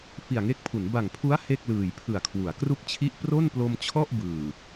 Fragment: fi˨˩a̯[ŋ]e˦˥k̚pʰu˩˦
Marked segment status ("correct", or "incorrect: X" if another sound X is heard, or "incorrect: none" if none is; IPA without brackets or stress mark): correct